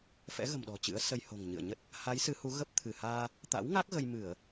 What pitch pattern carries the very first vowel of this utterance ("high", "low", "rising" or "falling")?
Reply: rising